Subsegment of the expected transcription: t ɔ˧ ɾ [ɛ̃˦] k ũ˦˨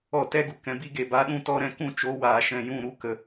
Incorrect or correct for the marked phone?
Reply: incorrect: ɛ̃˦˨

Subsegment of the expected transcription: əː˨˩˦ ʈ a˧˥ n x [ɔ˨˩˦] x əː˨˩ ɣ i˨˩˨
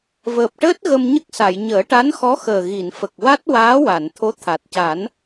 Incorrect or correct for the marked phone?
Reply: incorrect: ɔ˧˥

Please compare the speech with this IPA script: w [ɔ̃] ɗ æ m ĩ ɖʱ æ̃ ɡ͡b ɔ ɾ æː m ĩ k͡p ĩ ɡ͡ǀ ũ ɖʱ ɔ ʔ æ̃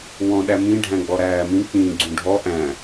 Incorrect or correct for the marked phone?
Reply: correct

